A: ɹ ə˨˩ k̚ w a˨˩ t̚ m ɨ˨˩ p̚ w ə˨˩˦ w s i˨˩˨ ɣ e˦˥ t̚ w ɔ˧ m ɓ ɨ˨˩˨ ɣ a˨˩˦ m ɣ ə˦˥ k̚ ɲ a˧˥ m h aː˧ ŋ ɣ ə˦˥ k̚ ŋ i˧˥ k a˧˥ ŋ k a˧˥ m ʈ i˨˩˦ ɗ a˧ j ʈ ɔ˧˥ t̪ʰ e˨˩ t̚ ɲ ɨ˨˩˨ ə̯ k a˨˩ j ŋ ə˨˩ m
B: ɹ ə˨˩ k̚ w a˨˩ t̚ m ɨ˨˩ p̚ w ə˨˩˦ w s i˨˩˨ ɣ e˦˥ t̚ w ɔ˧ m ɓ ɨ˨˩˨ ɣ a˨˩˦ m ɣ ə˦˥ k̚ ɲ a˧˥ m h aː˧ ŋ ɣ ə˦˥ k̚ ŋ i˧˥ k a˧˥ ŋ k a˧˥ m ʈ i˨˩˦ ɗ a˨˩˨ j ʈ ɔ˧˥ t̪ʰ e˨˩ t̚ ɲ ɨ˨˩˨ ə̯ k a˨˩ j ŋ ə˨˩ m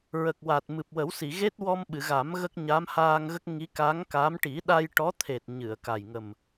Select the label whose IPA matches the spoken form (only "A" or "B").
A